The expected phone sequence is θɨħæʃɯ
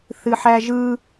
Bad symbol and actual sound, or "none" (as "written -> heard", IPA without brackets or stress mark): ʃ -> ʒ